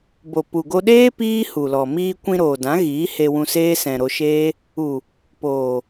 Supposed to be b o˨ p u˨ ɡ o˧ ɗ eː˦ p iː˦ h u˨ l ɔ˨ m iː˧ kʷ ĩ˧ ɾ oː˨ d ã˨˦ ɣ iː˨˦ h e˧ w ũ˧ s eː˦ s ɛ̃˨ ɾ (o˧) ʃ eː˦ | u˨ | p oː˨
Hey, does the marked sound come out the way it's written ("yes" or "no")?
yes